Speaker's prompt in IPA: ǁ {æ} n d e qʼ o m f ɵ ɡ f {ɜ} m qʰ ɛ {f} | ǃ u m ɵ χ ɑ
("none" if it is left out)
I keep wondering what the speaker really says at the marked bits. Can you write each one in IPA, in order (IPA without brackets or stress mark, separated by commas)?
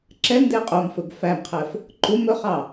ɛ, æ, f